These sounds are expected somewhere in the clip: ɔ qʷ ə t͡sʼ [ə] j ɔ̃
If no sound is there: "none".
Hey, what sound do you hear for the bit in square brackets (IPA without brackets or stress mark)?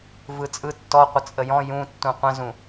ə